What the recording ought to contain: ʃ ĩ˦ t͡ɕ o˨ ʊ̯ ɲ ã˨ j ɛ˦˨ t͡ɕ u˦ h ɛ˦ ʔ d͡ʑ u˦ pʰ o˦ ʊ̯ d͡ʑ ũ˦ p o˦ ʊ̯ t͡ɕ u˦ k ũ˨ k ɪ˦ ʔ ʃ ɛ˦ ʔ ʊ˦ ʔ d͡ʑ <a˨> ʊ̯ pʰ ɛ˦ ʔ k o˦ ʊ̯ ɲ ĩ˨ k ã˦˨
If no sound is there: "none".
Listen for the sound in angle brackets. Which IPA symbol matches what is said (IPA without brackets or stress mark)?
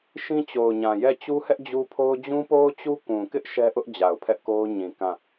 a˨